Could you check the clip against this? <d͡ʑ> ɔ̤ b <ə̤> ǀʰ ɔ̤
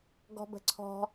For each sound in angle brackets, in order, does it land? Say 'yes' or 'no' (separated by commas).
no, yes